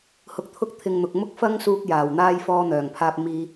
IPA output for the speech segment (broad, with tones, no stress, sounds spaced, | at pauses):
h ʊ˨ k̚ t̪ʰ ʊ˧ k̚ t̪ʰ ɪ˨ ŋ n̪ ʊ˨ k̚ m ʊ˥ k̚ f ɐ˥ ŋ s uː˧ k̚ j aː˨˩ w n̪ aː˧ j f ɔː˧ n̪ œː˨˩ ŋ pʰ aː˧ p̚ m iː˧